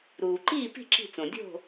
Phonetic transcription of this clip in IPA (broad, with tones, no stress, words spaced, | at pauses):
ɾuː˩ǃiː˥˩pi̤˥˩ ǁi̤˥˩t͡sõ˩ dʲo̤˥˩